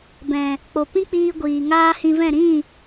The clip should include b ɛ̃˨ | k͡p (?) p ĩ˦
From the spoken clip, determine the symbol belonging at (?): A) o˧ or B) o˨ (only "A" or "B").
B